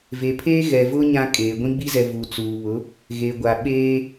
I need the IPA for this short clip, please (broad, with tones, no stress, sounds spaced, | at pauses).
v e˨ pʰ eː˦ ɣ ɛ˨ v ʊ˦ ɲ ã˦ kʼ eː˨ ɡʷ ĩ˦ ɡ͡b i˦ z ɛ˨ v uː˨ t͡s uː˨ β ʊ˨˦ | ɣ e˨ ɡʷ a˨ ɓ eː˦